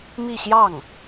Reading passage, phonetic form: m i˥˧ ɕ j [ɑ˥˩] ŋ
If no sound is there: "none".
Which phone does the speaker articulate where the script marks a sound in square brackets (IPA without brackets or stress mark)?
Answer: ɑ˥˩